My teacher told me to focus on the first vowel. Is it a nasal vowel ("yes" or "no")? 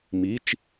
no